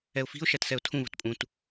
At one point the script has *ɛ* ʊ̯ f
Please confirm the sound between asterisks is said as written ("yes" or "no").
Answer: yes